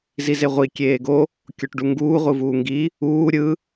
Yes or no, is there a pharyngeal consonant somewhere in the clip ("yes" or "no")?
no